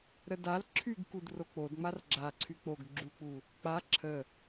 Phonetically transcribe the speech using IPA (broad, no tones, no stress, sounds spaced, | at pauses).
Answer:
ɾ ə d a l ǁʰ y ɡ k u d r o k͡p o d ŋ͡m a r ɡ͡ǁ a ǀʰ y k͡p o ɡ ɡ͡ǁ u k͡p u | k͡p a ǁʰ ə